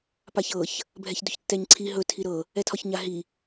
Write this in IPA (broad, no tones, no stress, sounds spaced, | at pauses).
p a ç ɤ ç | bʱ ɛ ç d ɵ ç tː ɛ ɲ ǀʰ i ɦ ɵ tʰ i ɾ ɤ | ɛ tʰ ɒ ç ɲ a ɦ i